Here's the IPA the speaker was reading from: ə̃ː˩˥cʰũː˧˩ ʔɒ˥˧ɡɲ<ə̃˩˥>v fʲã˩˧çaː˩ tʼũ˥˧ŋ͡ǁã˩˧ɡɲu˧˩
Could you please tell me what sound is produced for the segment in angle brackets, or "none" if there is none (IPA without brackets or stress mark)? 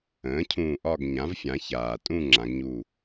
ã˩˥